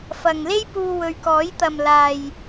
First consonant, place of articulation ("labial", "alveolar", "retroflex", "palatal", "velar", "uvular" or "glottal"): labial